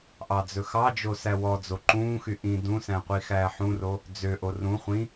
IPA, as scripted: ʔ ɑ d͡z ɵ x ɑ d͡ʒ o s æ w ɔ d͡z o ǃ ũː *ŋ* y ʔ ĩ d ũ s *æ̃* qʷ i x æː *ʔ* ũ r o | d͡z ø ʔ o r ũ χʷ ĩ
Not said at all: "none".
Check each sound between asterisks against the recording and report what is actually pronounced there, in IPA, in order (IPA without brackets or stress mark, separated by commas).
x, æ̃, ħ